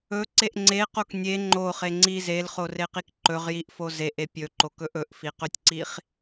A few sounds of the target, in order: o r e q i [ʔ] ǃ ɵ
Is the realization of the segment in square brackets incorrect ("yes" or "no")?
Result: yes